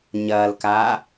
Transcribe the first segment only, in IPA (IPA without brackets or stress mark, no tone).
ɲ